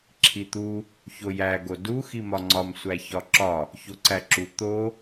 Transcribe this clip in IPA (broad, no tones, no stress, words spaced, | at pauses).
ǁʰit̪u | çojæ ɡodu ximɒŋ͡ǀɒm sʷæçɒǁɒ | çoǀæǁu t̪o